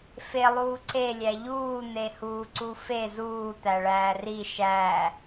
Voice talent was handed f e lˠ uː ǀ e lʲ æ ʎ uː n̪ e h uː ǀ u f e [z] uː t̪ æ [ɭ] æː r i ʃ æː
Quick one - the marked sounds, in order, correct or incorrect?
correct, correct

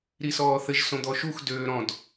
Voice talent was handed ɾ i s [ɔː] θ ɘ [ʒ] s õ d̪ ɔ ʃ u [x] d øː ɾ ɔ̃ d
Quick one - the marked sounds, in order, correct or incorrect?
correct, correct, correct

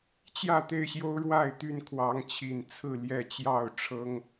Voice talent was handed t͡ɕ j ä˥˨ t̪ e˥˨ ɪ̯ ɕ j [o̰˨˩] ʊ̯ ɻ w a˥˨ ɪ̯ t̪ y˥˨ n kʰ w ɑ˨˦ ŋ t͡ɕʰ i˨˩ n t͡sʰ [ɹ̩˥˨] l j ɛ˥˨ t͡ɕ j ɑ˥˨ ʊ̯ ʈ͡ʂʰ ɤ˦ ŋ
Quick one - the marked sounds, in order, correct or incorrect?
incorrect, correct

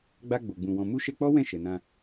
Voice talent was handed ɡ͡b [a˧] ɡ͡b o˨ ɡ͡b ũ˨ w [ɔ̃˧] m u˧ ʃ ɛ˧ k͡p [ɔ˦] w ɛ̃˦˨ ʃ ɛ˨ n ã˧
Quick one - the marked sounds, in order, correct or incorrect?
correct, incorrect, correct

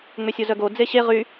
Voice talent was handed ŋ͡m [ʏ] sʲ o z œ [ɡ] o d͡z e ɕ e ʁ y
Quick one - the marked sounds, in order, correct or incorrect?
correct, correct

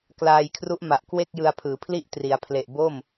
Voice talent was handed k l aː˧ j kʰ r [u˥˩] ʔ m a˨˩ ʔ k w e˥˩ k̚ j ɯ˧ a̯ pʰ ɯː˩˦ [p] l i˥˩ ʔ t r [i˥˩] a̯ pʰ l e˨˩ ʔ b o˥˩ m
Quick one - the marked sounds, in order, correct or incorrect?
incorrect, incorrect, incorrect

